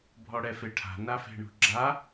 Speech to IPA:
bʱ ɔ ɽ ɛ f e ʈʰ a̤ n a f e̤ ɳ ṳ ɡ͡ǁ a

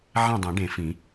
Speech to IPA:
ʕ ẽ˥˨ dˤ ẽ˨˩˦ ɖ ẽ˨˩˦ f ĩ˨˩˦

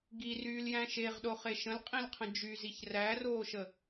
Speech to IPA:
ɡ i r yː l j æ̃ ʃ e ʁ ɗ o χ e ʃ ə̃ l qʼ ĩ l qʰ ə̃ d͡ʒ y z i ç r æ r oː ʃ ə

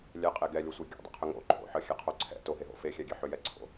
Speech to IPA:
lʲ ɛ qʼ e ɡ ɛ lʲ o sʷ e ɡʲ ɛ̰ dˤ ɛ̰ qʰ ʏ ŋ o̰ ǃʰ o̰ ħ ə xʲ e qʰ o ǀʰ ɛ̰ t o ɦ e ɦ o̰ f e xʲ ɛ ɡʲ e ħ ʏ j ɛ ǀʰ o̰

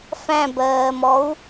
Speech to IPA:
f æ̃ b ɜː m ɔ u̯

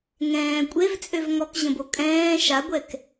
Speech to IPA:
ŋ ɛ̃ː kʷʼ e v t͡sʼ ø v ŋ ɔ k ʑ ə̃ b o kʼ ɛ̃ː ʃ a ɡʷ ɛ k

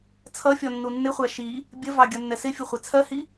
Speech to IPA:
t͡sʰ ʌ fʲ ɔ nː u nː ɪ χʷ æ ʃ i | bʲ ə v ɑ ɡʲ ʌ nː ɛ s ɪ fʲ ʊ χʷ ɛ t͡sʰ ɜ h i

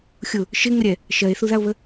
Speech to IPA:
xʲ ʊ | ʃ ɪ ŋ ə ɾʲ ɛ | ʃ ɜ e̯ θ u ð a o̯ β ə

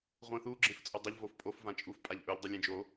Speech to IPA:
ʁʷ ẽ θ u ɡ͡ǁ ẽ f t͡sʼ o dˤ ɐ ʎ v o f pʼ o f v ã t͡ʃʼ u f pʼ a ʎ ʔ ɵ ʎ dˤ ʉ lʲ ẽ d͡ʒ o

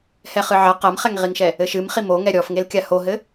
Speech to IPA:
h ɛ χ ɨ ʕ ɐ q ɐ m χ ɛ ŋ ʁ i ŋ ʃ ɛ | ɘ ʃ ɨ m χ i m o ŋ ɛ ɾʲ ɔ f ŋ e l kʲ a h o ɦ ɘ

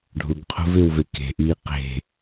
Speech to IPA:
ɖʱ u ɡ qʰ ṳ v ɪː w v e k e̤ ʔ iː q e̤

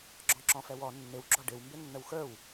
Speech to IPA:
ɡ͡ǁ ɔ̃ ǁ ɔ̃ f ɛ w ɔ nː ɪ w ɡ͡ǁ ɔ ɖ ɪ w m b ɪ nː ə w x ə˞ w

